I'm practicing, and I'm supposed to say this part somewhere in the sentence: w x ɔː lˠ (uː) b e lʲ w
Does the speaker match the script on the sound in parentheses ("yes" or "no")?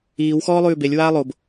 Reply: no